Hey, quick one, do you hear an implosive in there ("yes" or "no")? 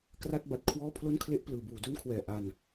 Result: no